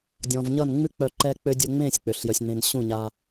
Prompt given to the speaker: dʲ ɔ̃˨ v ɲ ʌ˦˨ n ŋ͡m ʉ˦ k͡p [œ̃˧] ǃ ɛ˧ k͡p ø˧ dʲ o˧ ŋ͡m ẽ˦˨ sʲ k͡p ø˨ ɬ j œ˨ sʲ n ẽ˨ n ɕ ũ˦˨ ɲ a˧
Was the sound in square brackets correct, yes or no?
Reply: no